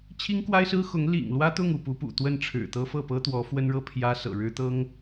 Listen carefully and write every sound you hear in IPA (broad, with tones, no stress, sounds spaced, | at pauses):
t͡ɕʰ i˥ ŋ k w a˥ ɪ̯ s ɹ̩˥ x ʊ˧˥ ŋ l ḭ˨˩ ŋ l w ä˥ t̪ ʊ˥˧ ŋ u˥˩ p u˧˥ p ṵ˨˩ t̪ w ə˥˩ n ʈ͡ʂʰ ɻ̩˨˩ t̪ ɤ˥ f ɤ˥˩ p ɤ˥ t̪ w ɔ˧˥ f w ə˥ n ɻ ɤ˥˩ pʰ j ä˥ s ɤ̰˨˩ ɻ ɻ̩˥ t̪ ɤ˥ ŋ